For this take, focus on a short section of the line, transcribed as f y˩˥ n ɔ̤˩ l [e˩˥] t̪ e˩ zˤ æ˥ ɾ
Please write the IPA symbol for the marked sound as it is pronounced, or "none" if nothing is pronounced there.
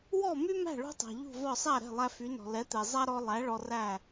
ɛ˩˥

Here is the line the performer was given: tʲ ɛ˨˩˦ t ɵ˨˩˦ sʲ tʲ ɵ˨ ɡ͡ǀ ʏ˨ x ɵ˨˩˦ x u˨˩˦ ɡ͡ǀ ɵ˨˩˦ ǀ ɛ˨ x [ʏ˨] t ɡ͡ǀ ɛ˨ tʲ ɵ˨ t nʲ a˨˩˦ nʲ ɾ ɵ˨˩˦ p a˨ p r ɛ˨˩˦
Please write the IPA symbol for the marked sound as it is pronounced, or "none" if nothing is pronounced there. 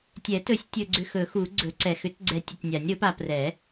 ʏ˨˩˦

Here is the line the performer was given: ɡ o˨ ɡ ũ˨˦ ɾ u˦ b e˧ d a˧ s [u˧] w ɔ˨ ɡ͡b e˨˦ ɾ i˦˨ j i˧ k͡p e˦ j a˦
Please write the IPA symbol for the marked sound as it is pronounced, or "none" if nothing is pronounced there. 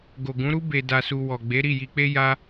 u˧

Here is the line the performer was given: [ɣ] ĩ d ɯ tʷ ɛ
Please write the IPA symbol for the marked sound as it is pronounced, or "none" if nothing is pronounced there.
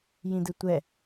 j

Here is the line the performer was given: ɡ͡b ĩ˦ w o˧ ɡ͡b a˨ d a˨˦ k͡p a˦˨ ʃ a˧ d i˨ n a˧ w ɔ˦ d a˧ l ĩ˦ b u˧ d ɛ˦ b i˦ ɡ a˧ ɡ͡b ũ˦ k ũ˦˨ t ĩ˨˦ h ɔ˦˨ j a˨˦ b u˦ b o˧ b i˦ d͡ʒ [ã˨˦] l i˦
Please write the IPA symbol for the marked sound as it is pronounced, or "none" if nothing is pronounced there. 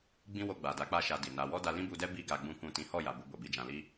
ã˧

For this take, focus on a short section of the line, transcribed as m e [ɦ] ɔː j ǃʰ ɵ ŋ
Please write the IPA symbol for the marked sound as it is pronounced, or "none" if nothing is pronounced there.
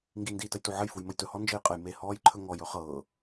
h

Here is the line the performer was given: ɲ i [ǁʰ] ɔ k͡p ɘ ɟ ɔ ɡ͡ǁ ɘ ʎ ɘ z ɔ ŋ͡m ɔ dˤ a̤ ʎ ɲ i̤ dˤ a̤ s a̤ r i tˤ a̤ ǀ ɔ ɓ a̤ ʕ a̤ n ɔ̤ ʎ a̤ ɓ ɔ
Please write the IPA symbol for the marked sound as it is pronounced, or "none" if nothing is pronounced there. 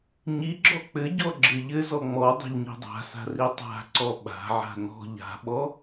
ɡ͡ǁ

